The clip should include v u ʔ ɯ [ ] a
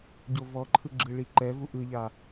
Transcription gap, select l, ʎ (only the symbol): ʎ